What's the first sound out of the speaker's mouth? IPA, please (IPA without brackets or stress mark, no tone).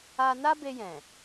a